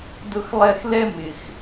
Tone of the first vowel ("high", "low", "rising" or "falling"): high